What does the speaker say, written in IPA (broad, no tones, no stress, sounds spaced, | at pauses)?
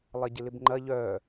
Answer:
lˠ ɐ ɟ ɪ l ɪ b ŋ͡ǃ ɐ ʎ œ